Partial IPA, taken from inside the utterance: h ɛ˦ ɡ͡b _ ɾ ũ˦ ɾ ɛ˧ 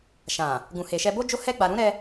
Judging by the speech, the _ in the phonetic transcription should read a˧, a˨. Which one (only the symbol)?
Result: a˧